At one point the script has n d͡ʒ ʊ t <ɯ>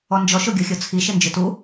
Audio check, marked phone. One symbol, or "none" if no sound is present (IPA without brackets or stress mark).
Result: u